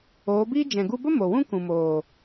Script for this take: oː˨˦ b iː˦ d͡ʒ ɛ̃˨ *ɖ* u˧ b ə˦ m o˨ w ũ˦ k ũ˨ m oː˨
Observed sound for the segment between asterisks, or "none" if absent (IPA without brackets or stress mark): ɡ